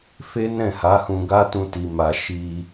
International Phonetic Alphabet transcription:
f e˦ n ɛ̃˦˨ h a˨˦ h ũ˧ ɡ a˦ t ũ˦ t i˧ m a˧ ʃ i˧

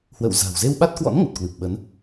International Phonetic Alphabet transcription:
h w ə̰˧˨ w z a̤˨˩ w z e˧ w ɓ a˦˥ t̚ k w ɔ̰˧˥ n ŋ ə˨˩ t̚ k w ɨ˨˩ p̚ ɓ ə˨˦ n

